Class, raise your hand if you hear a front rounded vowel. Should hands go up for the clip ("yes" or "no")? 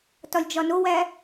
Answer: no